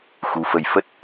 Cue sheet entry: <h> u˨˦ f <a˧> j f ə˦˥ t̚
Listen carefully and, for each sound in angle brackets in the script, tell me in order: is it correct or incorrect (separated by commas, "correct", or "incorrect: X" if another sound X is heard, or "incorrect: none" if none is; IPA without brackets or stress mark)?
incorrect: x, incorrect: ə˧